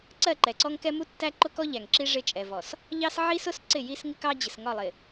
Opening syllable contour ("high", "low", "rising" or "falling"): falling